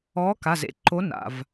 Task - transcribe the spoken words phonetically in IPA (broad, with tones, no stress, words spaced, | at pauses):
ɔː˨˥ka˩˧˩zḛ˨˥ ǃo˨˥ na̰˩˧˩v